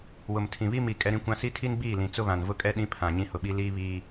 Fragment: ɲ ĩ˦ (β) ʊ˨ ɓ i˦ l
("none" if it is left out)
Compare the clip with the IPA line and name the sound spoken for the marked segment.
h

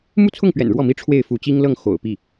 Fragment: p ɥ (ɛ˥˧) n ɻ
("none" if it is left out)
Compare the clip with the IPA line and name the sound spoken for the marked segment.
ɛ̰˨˩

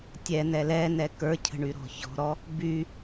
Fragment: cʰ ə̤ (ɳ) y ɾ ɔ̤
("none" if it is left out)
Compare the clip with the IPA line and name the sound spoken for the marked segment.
ɳ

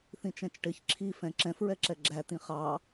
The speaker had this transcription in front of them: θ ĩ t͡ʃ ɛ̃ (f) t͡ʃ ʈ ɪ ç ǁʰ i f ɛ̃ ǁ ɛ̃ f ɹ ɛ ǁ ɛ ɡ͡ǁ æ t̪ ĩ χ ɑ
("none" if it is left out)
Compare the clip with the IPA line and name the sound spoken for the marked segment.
none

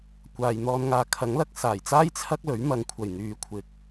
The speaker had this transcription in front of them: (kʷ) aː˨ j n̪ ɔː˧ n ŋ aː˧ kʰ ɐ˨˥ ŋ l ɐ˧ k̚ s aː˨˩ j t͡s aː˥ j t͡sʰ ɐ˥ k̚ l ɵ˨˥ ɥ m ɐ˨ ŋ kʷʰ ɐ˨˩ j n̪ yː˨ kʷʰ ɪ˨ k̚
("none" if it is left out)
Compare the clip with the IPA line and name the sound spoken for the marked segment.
kʷ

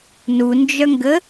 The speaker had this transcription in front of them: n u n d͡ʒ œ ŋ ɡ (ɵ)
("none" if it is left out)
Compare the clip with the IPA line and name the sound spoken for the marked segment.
ə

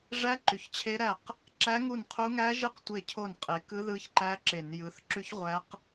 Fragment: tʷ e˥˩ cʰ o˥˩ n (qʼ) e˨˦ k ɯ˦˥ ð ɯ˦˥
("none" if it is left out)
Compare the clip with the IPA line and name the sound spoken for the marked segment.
qʼ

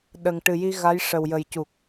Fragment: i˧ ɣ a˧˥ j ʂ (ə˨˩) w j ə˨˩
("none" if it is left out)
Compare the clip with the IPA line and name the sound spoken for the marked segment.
ə˨˩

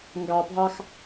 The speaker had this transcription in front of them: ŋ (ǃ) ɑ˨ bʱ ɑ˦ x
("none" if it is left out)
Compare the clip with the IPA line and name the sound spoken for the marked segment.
ɡ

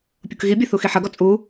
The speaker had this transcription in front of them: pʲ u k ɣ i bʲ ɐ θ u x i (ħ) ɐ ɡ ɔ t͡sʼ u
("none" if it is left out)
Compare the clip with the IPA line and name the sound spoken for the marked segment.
ħ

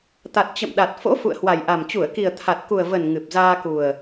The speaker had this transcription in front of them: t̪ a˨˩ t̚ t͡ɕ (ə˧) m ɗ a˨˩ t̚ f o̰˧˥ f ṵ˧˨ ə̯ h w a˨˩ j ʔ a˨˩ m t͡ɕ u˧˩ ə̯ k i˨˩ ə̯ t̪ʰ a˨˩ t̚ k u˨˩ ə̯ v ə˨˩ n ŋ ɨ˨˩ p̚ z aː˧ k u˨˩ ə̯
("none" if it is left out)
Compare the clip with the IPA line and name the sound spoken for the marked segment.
ə̰˧˨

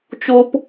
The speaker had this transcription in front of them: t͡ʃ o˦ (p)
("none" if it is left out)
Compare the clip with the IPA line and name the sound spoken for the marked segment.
p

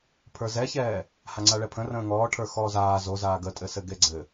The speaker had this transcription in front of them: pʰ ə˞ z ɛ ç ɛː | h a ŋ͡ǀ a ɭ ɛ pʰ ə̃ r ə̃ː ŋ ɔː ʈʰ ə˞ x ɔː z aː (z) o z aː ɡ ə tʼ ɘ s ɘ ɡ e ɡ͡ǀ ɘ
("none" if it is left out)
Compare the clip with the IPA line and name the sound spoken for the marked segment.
z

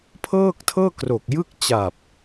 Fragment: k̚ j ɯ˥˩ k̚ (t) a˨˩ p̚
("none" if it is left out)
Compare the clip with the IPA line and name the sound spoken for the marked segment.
t͡ɕ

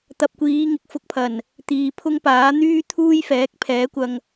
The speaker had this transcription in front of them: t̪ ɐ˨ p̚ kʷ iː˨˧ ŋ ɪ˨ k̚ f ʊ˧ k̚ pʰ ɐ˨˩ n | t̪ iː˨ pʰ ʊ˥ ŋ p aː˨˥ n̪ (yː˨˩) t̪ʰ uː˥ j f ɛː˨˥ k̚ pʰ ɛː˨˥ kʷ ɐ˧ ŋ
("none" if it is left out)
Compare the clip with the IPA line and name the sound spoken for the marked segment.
yː˥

